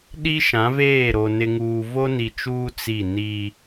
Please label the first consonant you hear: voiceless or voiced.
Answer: voiced